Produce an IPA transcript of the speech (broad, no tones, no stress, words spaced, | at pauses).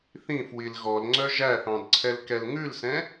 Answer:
θĩfwil ɣɔlŋ͡ǀœ ʒæθɑ̃d ǀʰɛlkɛlŋʉlsɛ̃